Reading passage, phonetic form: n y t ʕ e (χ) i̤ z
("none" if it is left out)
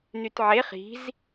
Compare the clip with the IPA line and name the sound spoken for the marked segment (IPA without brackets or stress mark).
χ